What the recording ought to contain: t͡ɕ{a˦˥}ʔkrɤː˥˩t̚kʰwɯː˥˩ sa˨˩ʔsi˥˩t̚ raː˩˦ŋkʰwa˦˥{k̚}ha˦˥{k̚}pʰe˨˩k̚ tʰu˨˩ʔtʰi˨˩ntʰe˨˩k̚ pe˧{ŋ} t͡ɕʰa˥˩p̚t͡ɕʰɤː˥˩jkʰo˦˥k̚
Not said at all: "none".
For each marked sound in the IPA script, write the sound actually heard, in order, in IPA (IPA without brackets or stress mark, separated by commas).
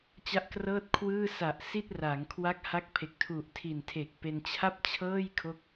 a˦˥, k̚, k̚, n